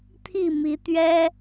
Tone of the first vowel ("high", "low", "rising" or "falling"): falling